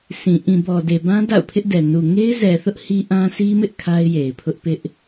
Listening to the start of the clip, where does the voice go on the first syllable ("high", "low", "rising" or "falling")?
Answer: low